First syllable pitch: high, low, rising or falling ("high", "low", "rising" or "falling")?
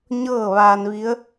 falling